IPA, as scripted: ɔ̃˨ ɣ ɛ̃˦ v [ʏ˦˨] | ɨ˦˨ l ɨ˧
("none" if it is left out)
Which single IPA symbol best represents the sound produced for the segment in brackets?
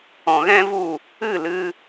u˦˨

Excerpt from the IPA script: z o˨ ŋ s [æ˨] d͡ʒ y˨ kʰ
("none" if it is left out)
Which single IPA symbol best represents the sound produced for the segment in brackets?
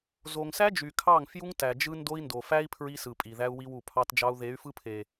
æ˦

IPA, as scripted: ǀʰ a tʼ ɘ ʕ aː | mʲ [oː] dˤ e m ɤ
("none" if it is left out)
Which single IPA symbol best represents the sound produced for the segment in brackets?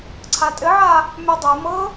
o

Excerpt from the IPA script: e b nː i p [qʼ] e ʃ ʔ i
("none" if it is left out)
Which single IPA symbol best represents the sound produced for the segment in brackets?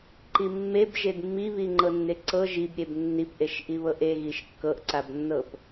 ʔ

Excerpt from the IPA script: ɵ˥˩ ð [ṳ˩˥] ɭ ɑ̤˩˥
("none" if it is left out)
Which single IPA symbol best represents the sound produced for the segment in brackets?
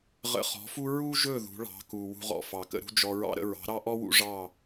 ṳ˩˥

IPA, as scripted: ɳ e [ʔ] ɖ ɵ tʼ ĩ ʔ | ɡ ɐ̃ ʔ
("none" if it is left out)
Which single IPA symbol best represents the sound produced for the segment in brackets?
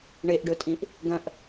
ʔ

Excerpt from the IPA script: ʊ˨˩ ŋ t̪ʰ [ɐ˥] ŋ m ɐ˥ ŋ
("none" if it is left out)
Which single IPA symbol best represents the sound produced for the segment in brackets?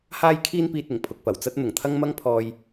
ɐ˥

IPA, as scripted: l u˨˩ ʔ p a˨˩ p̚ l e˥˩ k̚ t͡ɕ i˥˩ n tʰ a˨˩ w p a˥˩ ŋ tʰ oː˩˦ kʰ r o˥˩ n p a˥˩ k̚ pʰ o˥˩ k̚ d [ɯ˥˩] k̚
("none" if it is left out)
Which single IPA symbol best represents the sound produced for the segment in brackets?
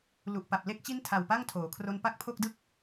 ɯ˥˩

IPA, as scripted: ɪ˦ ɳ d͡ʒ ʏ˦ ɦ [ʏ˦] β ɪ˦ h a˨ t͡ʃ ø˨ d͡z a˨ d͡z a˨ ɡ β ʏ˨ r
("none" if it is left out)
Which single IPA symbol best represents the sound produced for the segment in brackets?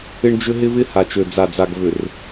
ɪ˦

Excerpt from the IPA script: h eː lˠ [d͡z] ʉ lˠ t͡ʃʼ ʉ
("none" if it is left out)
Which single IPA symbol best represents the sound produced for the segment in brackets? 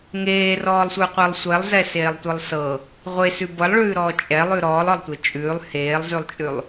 z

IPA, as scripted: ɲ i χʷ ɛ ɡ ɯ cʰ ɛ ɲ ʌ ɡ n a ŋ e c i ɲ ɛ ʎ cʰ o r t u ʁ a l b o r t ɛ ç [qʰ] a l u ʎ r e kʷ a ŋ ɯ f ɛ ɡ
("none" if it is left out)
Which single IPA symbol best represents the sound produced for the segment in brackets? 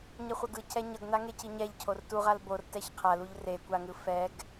qʰ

